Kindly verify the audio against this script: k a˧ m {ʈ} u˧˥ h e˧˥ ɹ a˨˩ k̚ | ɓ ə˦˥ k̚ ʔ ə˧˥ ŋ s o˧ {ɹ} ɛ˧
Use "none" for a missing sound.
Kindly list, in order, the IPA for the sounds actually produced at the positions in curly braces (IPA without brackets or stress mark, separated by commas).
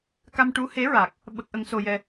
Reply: ʈ, j